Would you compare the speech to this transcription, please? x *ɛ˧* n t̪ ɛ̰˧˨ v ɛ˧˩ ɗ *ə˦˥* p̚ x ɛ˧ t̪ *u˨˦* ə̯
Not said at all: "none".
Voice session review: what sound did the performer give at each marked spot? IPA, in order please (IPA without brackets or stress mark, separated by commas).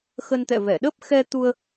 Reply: ə˧, ə˦˥, u˧